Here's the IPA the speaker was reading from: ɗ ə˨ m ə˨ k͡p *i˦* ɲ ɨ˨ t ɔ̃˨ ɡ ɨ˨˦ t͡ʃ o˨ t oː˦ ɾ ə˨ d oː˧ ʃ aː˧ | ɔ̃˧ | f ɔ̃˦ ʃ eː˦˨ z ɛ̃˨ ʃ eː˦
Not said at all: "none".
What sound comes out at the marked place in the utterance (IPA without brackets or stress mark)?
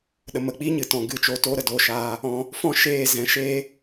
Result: iː˦